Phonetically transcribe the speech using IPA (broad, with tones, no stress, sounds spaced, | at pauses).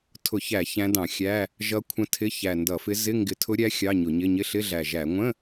tʰ ʊ˧˩˧ ç æ˧˩˧ ç æ̃˧˥ d ɑ̃˧˩˧ xʲ æ˧˥˧ | ʒ ʌ˧˥ kʷʰ ə̃˧˥ tʰ ɪ˧˥˧ ç æ˨˩ n d ʌ˧˩˧ f ɪ˧˥ z ɪ˧˥˧ ŋ ɡ ɪ˧˩˧ tʰ ʊ˧˥ ɾʲ æ˧˥ xʲ ɑ˧˥˧ ɲ ʊ˧˩˧ ɲ ɪ˧˥˧ ɲ ɪ˧˥˧ ɬ ɪ˧˥˧ ɮ æ˨˩ ʒ æ˧˩˧ ŋʷ ə̃˧˥˧